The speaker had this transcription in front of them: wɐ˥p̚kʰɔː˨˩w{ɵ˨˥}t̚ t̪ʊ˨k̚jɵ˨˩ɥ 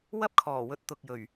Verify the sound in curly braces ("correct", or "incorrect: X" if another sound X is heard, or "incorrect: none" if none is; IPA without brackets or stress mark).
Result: incorrect: ɵ˨